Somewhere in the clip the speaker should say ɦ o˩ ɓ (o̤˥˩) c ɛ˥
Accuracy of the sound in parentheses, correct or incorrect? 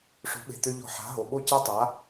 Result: incorrect: o˥˩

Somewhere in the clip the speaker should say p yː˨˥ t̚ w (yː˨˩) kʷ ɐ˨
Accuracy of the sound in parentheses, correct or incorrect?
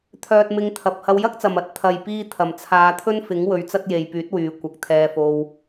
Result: incorrect: yː˨˧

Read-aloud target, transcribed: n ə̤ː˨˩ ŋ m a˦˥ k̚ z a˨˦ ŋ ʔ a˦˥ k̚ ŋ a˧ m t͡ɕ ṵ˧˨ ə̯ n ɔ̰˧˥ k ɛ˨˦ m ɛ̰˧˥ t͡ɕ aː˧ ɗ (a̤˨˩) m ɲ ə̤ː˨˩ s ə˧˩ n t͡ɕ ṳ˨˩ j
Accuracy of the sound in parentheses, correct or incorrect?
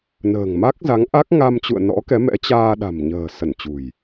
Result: correct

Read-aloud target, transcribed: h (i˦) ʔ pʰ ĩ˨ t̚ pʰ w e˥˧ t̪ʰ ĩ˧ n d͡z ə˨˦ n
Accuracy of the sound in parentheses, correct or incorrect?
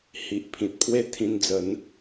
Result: incorrect: i˨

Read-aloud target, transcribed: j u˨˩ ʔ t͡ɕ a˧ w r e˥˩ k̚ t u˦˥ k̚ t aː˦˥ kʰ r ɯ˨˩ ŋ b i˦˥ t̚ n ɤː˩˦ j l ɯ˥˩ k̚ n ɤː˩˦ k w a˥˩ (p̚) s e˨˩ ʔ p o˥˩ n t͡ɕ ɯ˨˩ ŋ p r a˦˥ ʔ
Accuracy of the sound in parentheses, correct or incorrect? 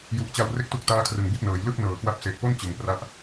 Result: correct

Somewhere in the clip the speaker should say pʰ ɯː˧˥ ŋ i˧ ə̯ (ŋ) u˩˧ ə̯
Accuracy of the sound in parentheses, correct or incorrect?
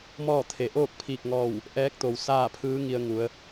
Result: correct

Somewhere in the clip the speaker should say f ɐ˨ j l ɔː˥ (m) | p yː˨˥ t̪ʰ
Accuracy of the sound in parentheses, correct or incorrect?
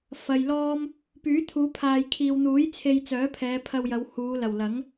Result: correct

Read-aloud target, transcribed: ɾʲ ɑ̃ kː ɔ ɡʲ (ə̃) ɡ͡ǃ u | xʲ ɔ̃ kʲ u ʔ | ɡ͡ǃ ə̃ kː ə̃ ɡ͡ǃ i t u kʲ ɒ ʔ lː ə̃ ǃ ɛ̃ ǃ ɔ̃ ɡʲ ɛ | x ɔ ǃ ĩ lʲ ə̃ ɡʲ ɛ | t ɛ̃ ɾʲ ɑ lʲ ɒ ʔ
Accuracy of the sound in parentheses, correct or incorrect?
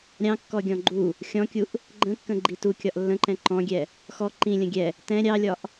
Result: incorrect: ɔ̃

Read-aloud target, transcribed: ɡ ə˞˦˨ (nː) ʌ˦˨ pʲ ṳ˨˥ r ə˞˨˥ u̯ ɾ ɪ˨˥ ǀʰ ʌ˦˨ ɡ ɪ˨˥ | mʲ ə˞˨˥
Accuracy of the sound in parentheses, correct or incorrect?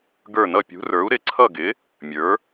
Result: incorrect: n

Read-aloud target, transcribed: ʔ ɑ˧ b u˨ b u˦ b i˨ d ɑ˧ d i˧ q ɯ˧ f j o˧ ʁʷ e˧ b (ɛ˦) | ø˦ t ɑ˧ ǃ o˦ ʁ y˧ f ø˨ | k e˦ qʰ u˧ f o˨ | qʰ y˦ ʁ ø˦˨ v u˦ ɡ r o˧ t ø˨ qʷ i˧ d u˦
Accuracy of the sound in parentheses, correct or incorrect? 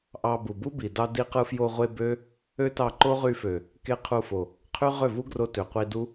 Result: incorrect: ø˦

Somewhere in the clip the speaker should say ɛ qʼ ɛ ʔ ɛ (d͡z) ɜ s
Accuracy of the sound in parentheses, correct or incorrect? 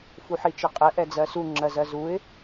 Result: correct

